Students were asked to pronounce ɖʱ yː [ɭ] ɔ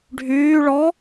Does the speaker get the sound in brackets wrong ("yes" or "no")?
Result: no